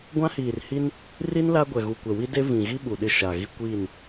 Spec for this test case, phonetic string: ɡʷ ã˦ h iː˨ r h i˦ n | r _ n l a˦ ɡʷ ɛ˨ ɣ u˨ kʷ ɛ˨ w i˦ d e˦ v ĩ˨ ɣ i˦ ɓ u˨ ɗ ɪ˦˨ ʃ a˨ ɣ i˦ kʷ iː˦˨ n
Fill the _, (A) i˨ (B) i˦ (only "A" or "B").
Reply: B